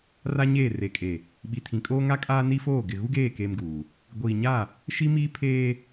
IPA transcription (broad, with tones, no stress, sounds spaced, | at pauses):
r a˦ ɲ eː˦˨ r e˨ kʼ e˨ | ɓ i˨ tʰ ĩ˨ kʼ oː˦ ŋ a˦ kʼ aː˦ n i˦ f oː˦˨ ɡ ɪ˨ ɣ u˦ ɡ eː˦˨ k eː˦ m ɡ uː˨ | ɡʷ iː˨ ɲ a˦˨ | ʃ i˦ m iː˦ pʰ eː˦